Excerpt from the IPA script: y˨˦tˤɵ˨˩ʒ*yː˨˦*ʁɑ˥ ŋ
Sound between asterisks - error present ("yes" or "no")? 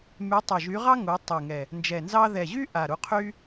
yes